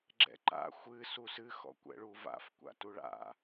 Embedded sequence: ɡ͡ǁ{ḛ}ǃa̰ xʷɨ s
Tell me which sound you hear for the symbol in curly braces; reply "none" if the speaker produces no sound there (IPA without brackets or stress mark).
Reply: ɛ̰